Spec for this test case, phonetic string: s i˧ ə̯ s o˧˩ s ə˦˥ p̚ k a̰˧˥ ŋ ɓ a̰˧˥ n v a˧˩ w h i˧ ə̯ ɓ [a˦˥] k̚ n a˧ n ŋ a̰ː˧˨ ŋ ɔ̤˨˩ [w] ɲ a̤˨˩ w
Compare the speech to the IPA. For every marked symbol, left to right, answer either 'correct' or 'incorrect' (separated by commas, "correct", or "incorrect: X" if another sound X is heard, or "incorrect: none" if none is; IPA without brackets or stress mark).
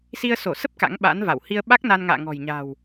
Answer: correct, incorrect: j